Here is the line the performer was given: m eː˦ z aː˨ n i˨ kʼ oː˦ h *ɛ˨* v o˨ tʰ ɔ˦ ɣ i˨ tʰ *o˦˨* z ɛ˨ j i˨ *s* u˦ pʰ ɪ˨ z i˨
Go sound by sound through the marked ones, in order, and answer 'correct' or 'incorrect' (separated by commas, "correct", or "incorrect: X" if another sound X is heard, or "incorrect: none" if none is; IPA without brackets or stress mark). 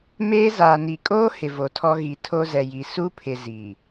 incorrect: ɪ˨, incorrect: o˦, correct